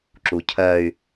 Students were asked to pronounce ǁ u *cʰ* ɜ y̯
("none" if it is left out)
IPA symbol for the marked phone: cʰ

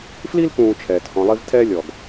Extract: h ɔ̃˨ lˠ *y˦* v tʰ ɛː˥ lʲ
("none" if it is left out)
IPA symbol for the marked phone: i˦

